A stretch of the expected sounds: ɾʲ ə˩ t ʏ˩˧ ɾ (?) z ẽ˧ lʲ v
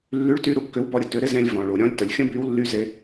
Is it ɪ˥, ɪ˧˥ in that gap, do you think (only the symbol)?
ɪ˥